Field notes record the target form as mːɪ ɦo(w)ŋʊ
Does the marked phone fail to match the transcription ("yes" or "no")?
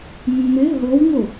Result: no